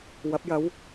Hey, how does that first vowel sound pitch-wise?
rising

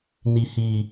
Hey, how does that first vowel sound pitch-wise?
high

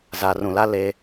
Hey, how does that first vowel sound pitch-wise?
low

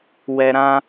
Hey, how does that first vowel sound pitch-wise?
low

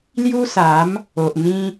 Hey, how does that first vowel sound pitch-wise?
high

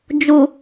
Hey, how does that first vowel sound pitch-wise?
low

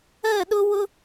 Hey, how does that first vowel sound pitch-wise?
falling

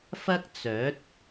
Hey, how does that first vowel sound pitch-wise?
high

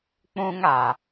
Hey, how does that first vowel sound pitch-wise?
high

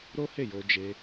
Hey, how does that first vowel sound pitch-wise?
high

